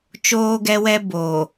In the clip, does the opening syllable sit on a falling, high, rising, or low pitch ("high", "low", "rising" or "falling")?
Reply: high